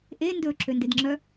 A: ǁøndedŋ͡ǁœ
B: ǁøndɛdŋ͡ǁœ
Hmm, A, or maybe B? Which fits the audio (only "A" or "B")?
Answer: A